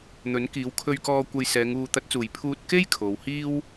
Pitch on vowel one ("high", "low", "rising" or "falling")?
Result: rising